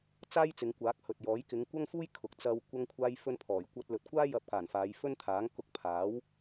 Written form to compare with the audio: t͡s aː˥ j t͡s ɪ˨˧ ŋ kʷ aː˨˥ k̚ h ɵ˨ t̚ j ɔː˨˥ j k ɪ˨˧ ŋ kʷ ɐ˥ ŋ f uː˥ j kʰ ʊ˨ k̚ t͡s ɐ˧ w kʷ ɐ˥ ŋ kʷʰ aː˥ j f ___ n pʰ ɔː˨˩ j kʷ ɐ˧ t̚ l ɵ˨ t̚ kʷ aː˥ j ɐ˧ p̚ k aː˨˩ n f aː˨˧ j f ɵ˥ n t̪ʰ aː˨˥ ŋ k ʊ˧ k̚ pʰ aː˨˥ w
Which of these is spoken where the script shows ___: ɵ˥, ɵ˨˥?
ɵ˥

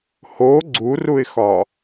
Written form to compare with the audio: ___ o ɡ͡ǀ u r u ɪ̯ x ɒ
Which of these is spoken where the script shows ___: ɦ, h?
h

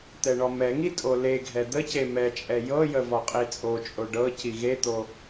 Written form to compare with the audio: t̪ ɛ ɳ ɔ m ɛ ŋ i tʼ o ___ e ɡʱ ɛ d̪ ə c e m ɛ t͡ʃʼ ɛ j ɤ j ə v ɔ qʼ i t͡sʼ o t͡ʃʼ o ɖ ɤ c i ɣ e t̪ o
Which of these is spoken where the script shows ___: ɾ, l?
l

